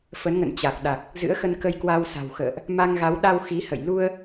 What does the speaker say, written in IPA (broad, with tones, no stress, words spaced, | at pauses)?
fə˨˦nŋə̰˧˨n t͡ɕa˨˩k̚ ɗa˨˩k̚ | zɨ̰˧˥ə̯xə˧nkə˧j kwa˧wsa̤˨˩w xə̰ː˧˨ʔ | ma˧ŋɣa˨˦w ɗa˧w xi˨˦ hə̰˧˨jlu˧ə̯